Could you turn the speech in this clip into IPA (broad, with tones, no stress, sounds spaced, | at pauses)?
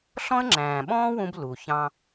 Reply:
ɬ ɔ̃˥ ə̯ ŋ͡ǁ æ̃ː˩ ɓ ɔ̃ː˥ w ũ˧ b l u˩ ç ɑ̃˧